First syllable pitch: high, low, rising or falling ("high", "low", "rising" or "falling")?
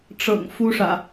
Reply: low